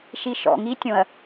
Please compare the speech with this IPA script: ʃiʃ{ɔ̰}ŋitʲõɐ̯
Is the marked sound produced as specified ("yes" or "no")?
yes